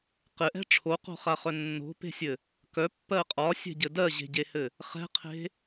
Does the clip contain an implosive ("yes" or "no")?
no